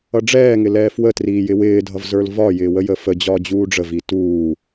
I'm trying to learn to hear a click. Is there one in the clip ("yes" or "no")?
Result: no